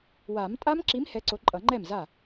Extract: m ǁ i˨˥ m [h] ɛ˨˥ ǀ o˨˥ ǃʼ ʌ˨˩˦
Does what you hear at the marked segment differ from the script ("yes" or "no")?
no